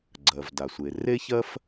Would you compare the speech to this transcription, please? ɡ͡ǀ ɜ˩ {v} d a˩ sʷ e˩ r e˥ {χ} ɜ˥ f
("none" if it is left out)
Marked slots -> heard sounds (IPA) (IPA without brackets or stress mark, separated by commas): v, ç